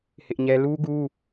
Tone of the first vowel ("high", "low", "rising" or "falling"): high